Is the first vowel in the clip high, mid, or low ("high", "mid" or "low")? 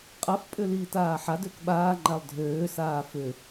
low